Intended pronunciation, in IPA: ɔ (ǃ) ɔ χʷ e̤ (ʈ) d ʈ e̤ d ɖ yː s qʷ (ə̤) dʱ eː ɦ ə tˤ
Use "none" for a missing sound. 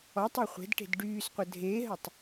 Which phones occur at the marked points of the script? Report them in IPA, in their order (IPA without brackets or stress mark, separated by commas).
tˤ, none, ə